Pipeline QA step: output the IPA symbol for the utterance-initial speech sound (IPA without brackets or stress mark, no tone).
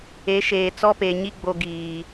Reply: e